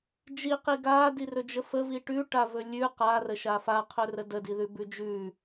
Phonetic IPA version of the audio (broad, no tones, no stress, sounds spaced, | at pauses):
d͡ʒ i q i ɡ a d i r ɵ d͡ʒ ə f ə v i ʈ ʉ ʈ a v ɵ lʲ ʉ q a r ə ʃ a f a qʰ ɵ r ə d ə d i ð ʉ b ʉ d͡ʒ ʉ